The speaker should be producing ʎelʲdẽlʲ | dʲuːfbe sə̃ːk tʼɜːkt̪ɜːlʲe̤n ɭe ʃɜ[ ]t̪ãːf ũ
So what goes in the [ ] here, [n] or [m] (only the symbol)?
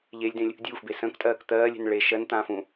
n